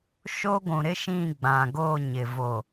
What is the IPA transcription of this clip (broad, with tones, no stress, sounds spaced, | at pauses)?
ʃ o˦ ɡʷ ũ˨ ɾ ɪ˦ ʃ ĩ˦˨ ɡ͡b ã˨ ɡ o˦˨ ɲ ɪ˨ v o˨